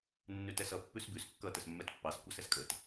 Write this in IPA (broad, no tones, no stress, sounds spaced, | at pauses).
nː ʉ t ɛ s ʌ pː ʉ s b ʉ s kː ʌ t ə s mː ɛ t pː ɑ s kʷ ɑ s ɛ s kʼ ə t